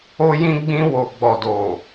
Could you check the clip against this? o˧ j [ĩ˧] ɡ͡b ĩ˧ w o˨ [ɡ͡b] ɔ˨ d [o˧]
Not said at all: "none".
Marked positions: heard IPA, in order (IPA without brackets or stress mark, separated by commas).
ĩ˧, ɡ͡b, o˨